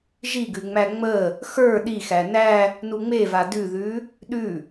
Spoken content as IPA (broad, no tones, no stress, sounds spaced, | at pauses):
ʒ i ɡ ʉ ŋ͡m æ ŋ͡m ə | x ə˞ ɗ i x æ n æ | n u ŋ͡m e v a d ʉ ð ʉ | ɗ ʉ